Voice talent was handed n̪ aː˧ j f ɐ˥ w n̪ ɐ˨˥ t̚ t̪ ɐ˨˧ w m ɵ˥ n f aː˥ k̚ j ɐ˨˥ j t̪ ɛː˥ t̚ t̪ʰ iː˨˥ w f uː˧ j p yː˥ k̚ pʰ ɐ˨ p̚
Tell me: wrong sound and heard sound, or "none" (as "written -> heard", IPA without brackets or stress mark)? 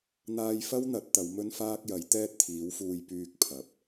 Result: none